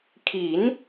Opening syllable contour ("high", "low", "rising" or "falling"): rising